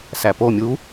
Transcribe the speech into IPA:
s æ p o mʲ u

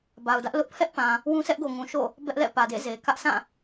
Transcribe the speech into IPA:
b a˨ ʊ̯ d ä˦ ʔ l ʊ˦ ʔ pʰ ɛ˦ ʔ p ã˨ | w ũ˦ s ɛ˦ ʔ ɡ o˨ ŋ ũ˨ ʃ o̰˦˨ | b ɛ˦ ʔ l ɛ̰˦˨ p ä˨ d ḛ˦˨ z e˨ k ä˦ ʔ s ã˦˨

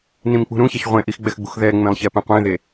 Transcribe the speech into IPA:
n ĩ m k͡p ṳ ɾ ũ ç a ç ʁʷ ẽ ʔ i x ɡ͡b ɛ x ɡ͡b ṳ x ð ɛ ŋ͡m ẽ lˠ ç ɛ p ẽ qʷ ẽ ð e

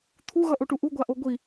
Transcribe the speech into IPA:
t̪ʰ u ɣ ʌ ʔ o ʈ u ʔ u ɡʷ a ʔ o ɡʷ i

